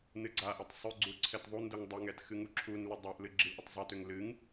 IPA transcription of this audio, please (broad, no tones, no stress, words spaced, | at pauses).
nɨɡ͡ǀaʔɛtˤ sˤʏɡ͡ǀu ǀʰɛtðˤunduŋ dˤʏŋɛt xɨŋuǁʰunlʏ dˤaʔlɨ ɡ͡ǁilʔʏtˤzˤɛtʏŋ lɨŋ